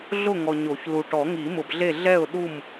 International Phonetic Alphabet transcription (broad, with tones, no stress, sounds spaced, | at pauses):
ɮ ʊ˥˨ ŋ ɔ˨ ɲ o˨˩˦ ç l u˨ ʈ ɔ˨˩˦ ŋ i˨˩˦ m ʊ˨ b ɮ e˥˨ ɮ ɛ˥˨ ʊ̯ ɗ u˥˨ m